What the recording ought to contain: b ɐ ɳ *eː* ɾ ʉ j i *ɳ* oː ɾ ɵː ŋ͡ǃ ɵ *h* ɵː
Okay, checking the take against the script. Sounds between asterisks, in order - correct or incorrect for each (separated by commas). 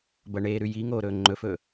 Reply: correct, incorrect, incorrect